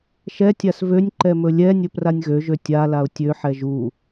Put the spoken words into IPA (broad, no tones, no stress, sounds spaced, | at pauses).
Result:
ʃ ɛ tʲ a s v ø nʲ ǃ ɛ m ɵ lʲ ɛ nʲ ɵ p r a nʲ ɣ ø ʒ ø tʲ a l a ʊ̯ tʲ ø ħ ɛ ʒ u